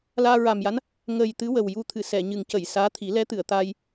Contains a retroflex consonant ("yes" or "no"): no